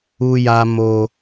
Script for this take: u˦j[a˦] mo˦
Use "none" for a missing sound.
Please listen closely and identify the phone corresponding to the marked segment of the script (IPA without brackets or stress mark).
a˦